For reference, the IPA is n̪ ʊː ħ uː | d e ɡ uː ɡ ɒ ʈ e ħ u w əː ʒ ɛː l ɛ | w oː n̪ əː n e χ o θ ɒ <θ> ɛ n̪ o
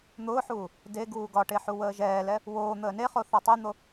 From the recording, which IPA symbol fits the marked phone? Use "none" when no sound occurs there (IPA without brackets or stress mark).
tˤ